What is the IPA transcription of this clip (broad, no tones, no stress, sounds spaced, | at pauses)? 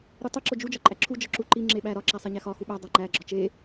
ɾ u tˤ i ǁ o d͡ʒ u d͡ʒ ɒ ǃʼ æ ǁʰ u d͡ʒ ɒ ǁ u ǃ i ŋ͡ǁ e ɓ æ ɾ ɒ ǁ æ sˤ e ɲ æ x ɒ x u ɓ æ dˤ æ ŋ͡ǃ æ ɡ͡ǁ ɒ t͡ʃ e